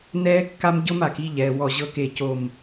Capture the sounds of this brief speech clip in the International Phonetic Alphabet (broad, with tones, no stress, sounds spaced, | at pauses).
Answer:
n ɛː˦ kː a˦ m ɟ ɤ˦ m a˨ k i˦ ʎ ɛː˨ w ɔ˦˨ ʑ ɤ˦ k e˦˨ c o˦˨ m